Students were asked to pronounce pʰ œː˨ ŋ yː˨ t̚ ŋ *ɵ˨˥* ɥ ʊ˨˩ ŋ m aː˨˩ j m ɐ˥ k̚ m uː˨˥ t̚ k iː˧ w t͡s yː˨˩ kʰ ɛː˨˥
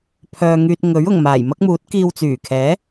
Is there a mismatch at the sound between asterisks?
no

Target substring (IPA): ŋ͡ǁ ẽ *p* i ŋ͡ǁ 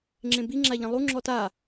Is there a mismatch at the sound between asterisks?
yes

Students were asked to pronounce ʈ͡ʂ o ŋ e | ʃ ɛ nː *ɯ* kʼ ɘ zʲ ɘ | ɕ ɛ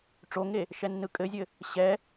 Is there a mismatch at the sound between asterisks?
no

